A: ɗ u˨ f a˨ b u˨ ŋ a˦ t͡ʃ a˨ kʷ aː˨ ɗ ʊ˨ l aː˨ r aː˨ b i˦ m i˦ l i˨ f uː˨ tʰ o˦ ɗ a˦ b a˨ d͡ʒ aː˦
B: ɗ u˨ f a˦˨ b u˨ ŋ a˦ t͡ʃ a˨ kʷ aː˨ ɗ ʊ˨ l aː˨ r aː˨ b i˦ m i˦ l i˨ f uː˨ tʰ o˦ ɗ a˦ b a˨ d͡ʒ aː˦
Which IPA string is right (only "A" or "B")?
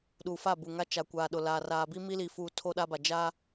B